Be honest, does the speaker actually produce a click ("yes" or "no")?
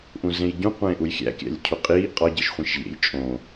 no